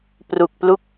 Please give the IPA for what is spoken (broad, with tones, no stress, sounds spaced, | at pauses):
p r u˨˩ k̚ p l u˥˩ k̚